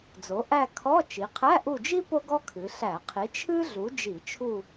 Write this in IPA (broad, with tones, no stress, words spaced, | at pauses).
d͡zo˩˧ ʔæ˦˨ kʰɔ˧˥˧ t͡ʃi˩˧qʰæ˧˥˧ʔu˦˨d͡ʒi˥ po˥ɡɔ˥kʰɨ˩˧ ɬæ˧˩˧qʰi˨˥ t͡ʃʰɨ˥ ɮu˨˥d͡ʒi˧˩˧t͡ʃʰu˦˨